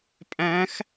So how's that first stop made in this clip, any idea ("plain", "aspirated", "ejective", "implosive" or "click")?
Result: ejective